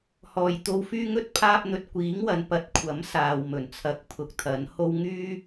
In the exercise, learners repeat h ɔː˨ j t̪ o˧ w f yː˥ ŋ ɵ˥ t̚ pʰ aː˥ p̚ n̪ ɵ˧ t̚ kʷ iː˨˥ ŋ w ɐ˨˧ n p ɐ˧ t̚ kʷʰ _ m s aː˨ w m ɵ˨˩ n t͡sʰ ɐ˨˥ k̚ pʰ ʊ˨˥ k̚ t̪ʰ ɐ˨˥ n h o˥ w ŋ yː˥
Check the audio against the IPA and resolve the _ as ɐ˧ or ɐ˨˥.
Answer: ɐ˨˥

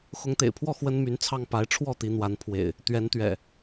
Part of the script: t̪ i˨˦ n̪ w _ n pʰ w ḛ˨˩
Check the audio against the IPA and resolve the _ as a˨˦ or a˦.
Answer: a˨˦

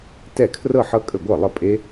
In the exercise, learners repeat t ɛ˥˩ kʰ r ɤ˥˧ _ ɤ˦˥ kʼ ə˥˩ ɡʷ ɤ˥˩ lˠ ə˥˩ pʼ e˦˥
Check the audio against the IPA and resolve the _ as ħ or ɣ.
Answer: ħ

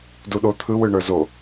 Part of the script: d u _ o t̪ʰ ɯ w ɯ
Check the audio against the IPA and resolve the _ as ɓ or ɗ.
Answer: ɗ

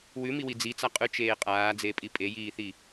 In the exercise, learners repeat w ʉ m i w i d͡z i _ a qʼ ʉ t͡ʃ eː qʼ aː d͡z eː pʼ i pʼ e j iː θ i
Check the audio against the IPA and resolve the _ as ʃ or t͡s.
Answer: t͡s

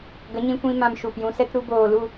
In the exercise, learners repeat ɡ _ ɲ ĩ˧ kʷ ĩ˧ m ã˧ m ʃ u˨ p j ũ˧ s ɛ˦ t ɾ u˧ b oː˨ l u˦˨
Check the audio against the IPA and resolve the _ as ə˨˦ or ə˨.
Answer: ə˨˦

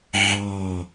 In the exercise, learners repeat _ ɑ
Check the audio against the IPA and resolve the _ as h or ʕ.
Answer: ʕ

